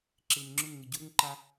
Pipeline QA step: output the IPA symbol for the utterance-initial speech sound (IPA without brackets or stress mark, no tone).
ǁ